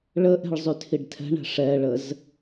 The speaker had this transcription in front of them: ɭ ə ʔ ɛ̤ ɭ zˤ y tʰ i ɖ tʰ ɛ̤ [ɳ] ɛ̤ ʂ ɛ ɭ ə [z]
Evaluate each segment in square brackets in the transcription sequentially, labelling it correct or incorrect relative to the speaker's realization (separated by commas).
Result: correct, correct